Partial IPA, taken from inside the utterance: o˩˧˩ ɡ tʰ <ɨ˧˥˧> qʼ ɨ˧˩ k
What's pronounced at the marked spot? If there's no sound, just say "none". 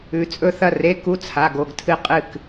ɨ˧˩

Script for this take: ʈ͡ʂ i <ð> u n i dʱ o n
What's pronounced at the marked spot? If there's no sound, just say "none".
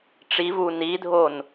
v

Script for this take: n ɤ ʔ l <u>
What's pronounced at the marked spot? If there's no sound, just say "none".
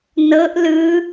ɯ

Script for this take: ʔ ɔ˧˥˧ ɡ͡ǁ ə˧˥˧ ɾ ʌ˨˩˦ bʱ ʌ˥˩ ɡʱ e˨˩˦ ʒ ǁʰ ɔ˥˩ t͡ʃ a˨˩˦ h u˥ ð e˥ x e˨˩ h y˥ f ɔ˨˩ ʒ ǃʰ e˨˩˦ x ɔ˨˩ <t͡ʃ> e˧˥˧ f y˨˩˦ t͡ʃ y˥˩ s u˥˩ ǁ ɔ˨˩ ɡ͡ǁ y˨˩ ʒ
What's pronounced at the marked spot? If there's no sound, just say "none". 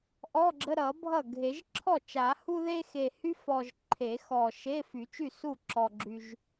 ʃ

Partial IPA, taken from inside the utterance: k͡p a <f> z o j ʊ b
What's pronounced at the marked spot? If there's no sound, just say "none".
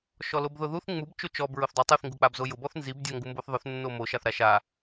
b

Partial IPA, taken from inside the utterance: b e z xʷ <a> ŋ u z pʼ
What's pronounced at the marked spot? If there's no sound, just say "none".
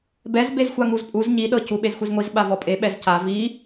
a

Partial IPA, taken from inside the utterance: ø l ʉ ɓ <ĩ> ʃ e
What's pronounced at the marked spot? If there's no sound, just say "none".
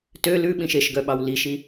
ĩ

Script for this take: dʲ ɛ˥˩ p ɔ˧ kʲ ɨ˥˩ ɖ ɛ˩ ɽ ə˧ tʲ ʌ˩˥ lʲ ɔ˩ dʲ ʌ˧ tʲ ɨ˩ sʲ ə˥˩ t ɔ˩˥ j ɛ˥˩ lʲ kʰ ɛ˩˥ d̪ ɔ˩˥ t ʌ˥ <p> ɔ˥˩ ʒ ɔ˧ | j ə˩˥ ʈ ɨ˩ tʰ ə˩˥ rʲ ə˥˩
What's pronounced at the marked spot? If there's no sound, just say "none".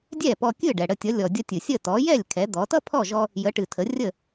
pʰ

